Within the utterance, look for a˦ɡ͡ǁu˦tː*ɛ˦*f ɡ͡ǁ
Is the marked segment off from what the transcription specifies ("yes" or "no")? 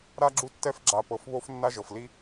no